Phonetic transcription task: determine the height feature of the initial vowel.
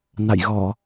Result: low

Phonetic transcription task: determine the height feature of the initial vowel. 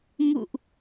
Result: high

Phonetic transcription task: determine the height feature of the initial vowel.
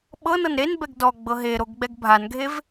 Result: mid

